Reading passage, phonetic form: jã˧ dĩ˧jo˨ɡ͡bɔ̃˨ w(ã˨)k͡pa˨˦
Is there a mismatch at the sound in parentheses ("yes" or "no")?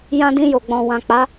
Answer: no